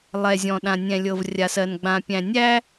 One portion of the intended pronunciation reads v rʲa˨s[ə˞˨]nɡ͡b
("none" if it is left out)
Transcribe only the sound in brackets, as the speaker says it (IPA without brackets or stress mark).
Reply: ɜ˨